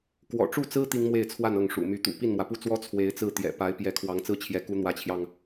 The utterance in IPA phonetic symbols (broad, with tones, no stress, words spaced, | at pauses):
kwɔ̰˨˩ʈ͡ʂu˥˩t͡sɹ̩˥ t̪i˥ŋmwe˥˧ɪ̯t͡sʰwa˥˧n ɤ˥˩ŋʂṵ˨˩ my˧˥t̪ṵ˨˩ pi˥˩nmwä˩pu˥˩t͡swɔ˥ t͡sʰwe˧˥ɪ̯t͡sɹ̩˥˩ t̪jɛ̰˨˩ pa˧˥ɪ̯pjɛ˧˥ kʰwɑ˧˥ŋt͡sɹ̩˥t͡ɕʰjɛ˧˥ ku˧˥n̪wä˧˥t͡ɕʰjɑ˧ŋ